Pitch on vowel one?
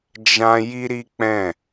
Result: high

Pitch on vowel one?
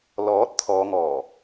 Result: rising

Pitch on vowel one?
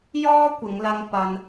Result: high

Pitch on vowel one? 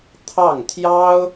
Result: falling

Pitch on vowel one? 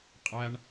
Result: low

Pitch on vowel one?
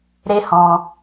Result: high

